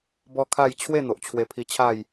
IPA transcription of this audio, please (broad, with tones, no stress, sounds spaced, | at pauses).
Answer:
b ɔ˦ kʰ a˥˧ j t͡ɕʰ w e˥˧ n̪ o˨ ʔ t͡ɕʰ w e˧ pʰ i˧ t͡ɕʰ a˥˧ j